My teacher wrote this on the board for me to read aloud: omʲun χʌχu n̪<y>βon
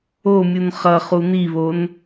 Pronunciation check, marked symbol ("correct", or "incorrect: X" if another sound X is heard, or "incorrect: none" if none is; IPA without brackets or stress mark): incorrect: i